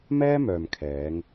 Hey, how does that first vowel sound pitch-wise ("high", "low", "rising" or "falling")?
high